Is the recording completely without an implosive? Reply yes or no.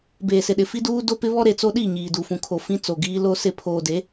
no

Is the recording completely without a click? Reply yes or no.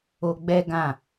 yes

